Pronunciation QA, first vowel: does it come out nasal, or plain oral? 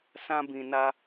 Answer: nasal